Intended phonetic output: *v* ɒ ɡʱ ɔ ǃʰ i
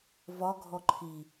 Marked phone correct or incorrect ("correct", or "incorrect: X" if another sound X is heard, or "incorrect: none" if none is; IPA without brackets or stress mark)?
correct